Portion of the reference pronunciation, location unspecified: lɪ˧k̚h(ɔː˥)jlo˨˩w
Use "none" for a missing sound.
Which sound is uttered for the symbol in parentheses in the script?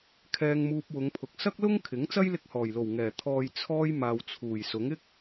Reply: ɔː˨˩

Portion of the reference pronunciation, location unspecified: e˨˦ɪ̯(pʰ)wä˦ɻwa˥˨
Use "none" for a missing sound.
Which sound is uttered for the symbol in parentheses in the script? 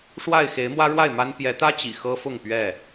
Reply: m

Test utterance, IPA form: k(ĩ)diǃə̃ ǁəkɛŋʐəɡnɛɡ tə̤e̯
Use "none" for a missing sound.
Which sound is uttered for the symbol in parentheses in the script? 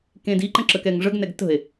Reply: ẽ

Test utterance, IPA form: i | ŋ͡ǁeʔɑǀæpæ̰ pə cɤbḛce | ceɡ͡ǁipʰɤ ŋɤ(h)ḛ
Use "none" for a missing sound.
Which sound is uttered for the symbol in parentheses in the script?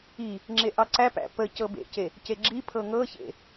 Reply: ç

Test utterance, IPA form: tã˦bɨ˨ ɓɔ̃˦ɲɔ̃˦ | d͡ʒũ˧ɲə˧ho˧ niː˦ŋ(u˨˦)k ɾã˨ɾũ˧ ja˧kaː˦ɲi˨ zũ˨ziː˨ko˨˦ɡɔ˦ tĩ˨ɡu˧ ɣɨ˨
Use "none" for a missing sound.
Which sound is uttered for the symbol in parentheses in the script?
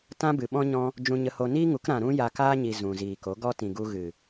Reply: u˨˦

